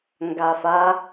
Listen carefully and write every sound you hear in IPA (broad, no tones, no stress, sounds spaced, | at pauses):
ŋ ɡ a f a